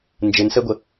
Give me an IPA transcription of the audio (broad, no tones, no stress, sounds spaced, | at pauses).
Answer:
n d͡ʒ ɘ n s ɛ ɡʷ ə